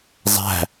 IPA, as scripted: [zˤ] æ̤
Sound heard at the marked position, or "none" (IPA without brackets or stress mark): zˤ